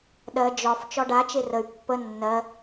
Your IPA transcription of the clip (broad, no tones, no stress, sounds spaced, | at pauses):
ɗ ɜ d͡ʒ ɒ f t͡ʃ ɒ ɖ a t͡ʃ e r ə y̯ pː ə nː ɜ